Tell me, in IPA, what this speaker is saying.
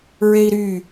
ɹ e i̯ ɾ y

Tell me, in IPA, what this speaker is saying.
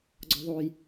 ɡ͡ǀ ɔ ðˤ o j

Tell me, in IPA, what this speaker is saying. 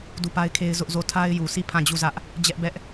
d u˦˨ p a˦ ɪ̯ kʰ e˦ ɪ̯ z ʊ˦ ʔ z o˦˨ tʰ a˦ ɪ̯ j u˨ s i˦˨ pʰ ã˦˨ d͡ʑ u˦˨ z ä˦ ʔ | d͡ʑ ɛ˦ ʔ b ɛ˦ ʔ

